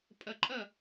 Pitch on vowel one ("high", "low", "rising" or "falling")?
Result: low